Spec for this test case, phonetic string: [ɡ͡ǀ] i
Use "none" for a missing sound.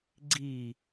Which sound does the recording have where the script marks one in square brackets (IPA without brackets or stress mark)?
ɡ͡ǀ